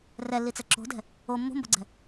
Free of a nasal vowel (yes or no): yes